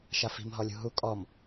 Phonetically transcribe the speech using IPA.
ʃ a f i̤ m ɦ ɔ lʲ ṳ ɦ u kʼ ɔ m

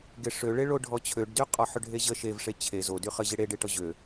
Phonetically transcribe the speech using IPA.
ɡ e ʂ ø ɭ e ɭ o ɖʱ ɔ t͡ɕʰ ø ɖ d y qʼ ɔ ħ ø ɖʱ e ʑ ə ʃ e v ʂ e t͡ɕʰ e z o d y χ ə ʑ e ɽ e ɖ e ʈ ɔ ʑ ø

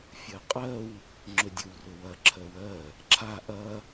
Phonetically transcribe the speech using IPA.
fʲ ɜ qʼ ɜ w | ŋ͡ǁ ɵ dʲ ɵ w r ɵ w ɐ ǁʰ ɜ w ɜ | ǁʰ a ʔ ɐ

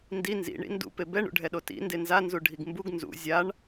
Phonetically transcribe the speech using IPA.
n d i n z ḭ ɳ ḭ n d ṵ p e b ɛ ɳ ṵ ɖʱ ɛ ɗ o t ḭ n d e n z a n z u ɖʱ i ɡ m b u ɡ n z ṵ zʲ a ɳ

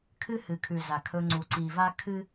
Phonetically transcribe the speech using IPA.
kʰ ɨ˦ h ɨ˨ kʰ ʉ˨ z a˨ kʰ ɵ˧ ŋ͡ǀ u˨ ǀ i˨ v a˦ kʰ ɨ˦

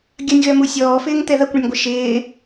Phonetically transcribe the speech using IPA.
ɡʲ ɐ nʲ ɣ œ m u sʲ ɔː f ɪː ŋ t̪ ɛ ð ɐ kʷ ɳ ə nʲ ɡʷ ɪ ʃ ɪː

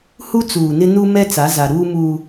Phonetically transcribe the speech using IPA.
h u˦ t͡s uː˨ n ɪ˦ n u˦ m ɛ˦ t͡s a˨˦ z a˨ ɾ uː˦ m uː˦

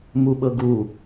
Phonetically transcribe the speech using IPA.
m u ɓ ɤ ɡ u

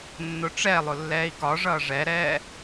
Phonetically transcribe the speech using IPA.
nː ʊ ʈ͡ʂ ɛ lˠ ʊ lː ɛː i̯ k ɒ ʐ ʌː ʐ ɛ ɾ ɛː

